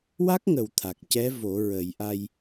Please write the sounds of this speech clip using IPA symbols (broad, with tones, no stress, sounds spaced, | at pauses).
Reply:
w a˦˥ k̚ ŋ ə˨˩ w t̪ʰ a˨˩ k̚ c ɛ˧˥ v o˨˩˦ ɹ ə˨˩˦ j ʔ a˧ j